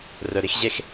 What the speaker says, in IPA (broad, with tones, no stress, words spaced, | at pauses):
rœ˨ɾi˦x ʑe˦x